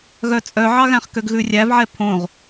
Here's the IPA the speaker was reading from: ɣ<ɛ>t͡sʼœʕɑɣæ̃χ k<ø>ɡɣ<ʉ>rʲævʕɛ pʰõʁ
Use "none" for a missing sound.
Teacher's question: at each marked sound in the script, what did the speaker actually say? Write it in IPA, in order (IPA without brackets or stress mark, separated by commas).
œ, ø, ʉ